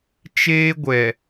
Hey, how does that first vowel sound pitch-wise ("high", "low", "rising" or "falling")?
high